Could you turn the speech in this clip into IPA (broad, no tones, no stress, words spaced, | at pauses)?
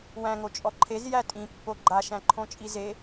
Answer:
wæ̃ŋo t͡ʃʼɔǃʰez jætʼĩ pːoɡ͡ǃa ʃæ̃ǃʰõt͡ʃʼize